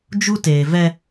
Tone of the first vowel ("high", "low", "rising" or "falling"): high